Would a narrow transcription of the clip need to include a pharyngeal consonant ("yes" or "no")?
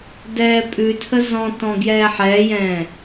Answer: yes